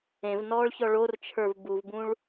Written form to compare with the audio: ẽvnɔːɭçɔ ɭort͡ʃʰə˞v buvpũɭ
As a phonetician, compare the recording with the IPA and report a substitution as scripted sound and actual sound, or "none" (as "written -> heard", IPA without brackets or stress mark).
p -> b